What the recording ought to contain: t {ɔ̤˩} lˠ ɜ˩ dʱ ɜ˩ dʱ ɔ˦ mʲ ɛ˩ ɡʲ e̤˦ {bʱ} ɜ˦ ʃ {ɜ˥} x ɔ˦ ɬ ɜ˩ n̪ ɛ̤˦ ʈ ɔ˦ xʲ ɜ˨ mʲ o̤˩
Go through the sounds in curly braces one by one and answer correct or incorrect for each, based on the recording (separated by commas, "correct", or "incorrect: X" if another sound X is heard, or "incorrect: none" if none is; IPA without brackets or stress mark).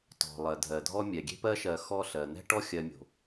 correct, incorrect: p, incorrect: ɜ˨